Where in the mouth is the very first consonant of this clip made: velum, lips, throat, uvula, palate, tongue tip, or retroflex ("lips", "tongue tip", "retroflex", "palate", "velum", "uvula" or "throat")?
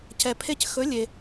palate